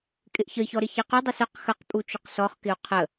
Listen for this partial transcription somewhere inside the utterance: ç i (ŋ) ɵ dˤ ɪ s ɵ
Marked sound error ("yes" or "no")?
yes